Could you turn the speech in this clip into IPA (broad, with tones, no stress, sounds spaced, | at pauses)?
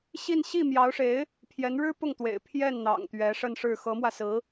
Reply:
ɕ i˥˧ n ɕ i˥˩ m j ɑ˧˥ ʊ̯ ʂ e˧˥ ɪ̯ | pʰ j ɛ˧˥ n ɻ ɻ̩˥ p ʊ˥˩ ŋ t̪ w ḛ˨˩ ɪ̯ pʰ j ɛ˥˩ n n̪ ɑ̰˨˩ ŋ t̪ ɥ ɛ˧˥ ʂ ə˥˧ n ʂ ɻ̩˥˩ x ɤ˧˥ m w ä˧ s ɹ̩˧˥